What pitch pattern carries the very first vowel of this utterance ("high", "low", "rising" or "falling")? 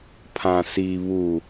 low